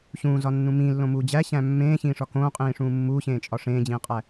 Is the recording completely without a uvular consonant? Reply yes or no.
no